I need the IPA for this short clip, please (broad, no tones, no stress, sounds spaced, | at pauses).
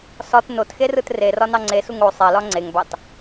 s ɒ t n o t x e r ɯ t r e r ɒ n ɑ ŋ͡ǀ e s u ŋ o sˤ e l ɒ ŋ͡ǀ e ŋ b ɑ t